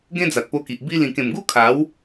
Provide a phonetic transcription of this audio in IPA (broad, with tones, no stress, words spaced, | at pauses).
ɡẽ˦d͡za˨t̚po˧ki˨ʔ bi˧ lĩ˨˩kẽ˨˩mɡu˦ kʰa˨˦w